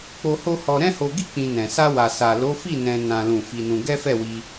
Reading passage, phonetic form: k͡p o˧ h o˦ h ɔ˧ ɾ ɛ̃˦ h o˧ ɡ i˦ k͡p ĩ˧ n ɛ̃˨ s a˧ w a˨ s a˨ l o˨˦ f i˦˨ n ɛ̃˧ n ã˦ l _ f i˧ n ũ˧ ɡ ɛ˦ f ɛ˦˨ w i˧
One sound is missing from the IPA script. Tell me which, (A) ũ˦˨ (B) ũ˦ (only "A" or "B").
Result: A